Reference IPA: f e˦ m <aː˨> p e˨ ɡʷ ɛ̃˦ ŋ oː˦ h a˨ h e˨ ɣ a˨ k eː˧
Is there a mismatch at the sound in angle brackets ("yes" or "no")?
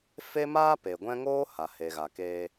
yes